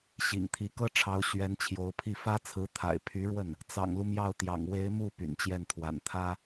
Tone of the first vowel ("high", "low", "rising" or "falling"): low